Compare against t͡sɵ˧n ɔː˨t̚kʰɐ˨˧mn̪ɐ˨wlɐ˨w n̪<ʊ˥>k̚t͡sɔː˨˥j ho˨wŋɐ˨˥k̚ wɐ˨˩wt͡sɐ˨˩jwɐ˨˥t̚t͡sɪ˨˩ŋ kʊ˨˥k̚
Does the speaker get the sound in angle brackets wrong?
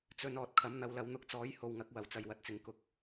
no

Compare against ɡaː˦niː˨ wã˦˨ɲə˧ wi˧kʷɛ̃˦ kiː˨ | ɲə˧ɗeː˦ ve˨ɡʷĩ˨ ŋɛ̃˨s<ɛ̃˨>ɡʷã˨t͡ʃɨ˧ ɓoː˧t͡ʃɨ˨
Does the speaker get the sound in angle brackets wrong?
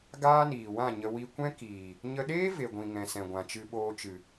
no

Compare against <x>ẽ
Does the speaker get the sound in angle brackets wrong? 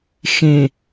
no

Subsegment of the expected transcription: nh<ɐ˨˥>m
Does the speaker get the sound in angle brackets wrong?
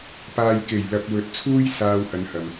yes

